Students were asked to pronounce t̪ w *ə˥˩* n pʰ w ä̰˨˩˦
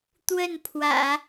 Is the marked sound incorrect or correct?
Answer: correct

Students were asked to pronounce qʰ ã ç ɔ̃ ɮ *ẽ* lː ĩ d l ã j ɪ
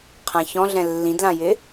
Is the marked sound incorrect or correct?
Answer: incorrect: ɛ̃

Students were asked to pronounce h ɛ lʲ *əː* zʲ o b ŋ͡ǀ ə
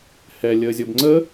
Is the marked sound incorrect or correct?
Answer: correct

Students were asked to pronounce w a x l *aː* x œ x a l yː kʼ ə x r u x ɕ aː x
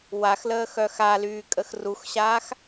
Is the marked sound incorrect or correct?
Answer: incorrect: əː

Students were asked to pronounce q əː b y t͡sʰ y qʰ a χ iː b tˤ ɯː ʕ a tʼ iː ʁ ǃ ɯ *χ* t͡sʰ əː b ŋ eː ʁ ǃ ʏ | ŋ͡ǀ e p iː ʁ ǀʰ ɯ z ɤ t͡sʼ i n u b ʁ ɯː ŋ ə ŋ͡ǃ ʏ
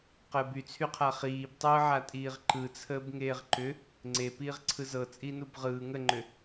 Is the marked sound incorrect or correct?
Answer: incorrect: none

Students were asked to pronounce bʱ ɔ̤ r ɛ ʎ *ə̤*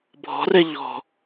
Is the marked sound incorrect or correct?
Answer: incorrect: ɔ̤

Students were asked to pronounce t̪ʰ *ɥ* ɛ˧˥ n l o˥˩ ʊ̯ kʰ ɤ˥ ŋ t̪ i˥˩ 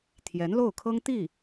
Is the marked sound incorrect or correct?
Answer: incorrect: j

